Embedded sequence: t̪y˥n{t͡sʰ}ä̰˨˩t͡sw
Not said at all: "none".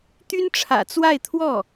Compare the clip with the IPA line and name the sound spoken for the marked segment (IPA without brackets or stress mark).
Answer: ʈ͡ʂʰ